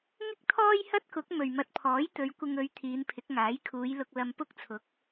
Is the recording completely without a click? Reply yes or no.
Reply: yes